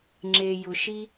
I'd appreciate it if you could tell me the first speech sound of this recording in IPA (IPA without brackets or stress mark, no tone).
ŋ͡ǁ